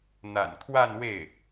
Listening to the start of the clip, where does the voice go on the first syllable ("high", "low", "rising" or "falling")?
low